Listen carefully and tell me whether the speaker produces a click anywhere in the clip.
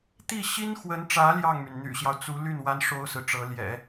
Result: no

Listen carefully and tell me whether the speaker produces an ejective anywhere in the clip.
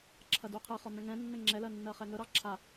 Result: no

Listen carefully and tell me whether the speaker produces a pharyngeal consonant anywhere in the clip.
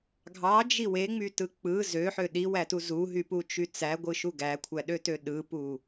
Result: yes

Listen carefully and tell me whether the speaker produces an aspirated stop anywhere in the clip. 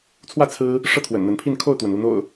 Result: yes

